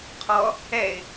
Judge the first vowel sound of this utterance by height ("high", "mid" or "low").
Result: mid